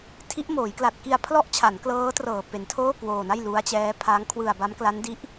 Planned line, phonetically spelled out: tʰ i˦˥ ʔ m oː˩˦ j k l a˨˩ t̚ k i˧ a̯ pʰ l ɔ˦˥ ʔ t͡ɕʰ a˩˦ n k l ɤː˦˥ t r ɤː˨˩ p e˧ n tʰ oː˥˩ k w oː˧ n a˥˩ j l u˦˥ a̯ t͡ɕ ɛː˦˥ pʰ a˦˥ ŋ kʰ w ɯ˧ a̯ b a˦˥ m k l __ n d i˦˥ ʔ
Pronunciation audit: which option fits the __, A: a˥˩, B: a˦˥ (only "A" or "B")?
B